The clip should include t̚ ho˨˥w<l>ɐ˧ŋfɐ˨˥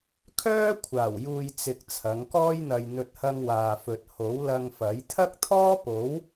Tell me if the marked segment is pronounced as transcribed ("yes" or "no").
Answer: yes